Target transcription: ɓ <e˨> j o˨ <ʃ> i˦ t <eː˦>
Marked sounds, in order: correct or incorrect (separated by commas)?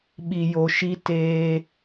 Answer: incorrect, correct, correct